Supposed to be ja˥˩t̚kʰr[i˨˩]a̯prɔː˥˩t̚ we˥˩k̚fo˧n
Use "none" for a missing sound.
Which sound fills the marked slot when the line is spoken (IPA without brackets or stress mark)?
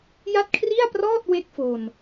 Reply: i˥˩